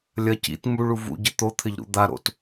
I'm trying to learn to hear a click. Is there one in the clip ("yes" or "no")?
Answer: no